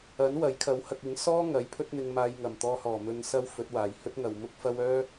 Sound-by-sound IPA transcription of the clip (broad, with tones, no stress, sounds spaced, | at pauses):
ɐ˨˥ n w ɐ˨˥ j kʰ ɐ˨˥ w h ɐ˧ k̚ ɪ˨˥ ŋ s ɔː˥ ŋ ɐ˨˥ j pʰ ɵ˥ t̚ n̪ ɪ˧ ŋ m aː˧ j ŋ ɐ˨˩ m t̪ ɔː˧ h ɔː˨˩ m ɵ˧ n s ɐ˥ w f ɵ˨˥ t̚ w aː˨˩ j h ɵ˥ t̚ ŋ ɐ˨ w m ʊ˥ k̚ f ɐ˥ w œː˥